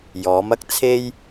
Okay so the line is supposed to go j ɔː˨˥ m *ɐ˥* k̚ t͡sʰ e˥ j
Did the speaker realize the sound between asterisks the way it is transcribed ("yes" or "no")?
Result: yes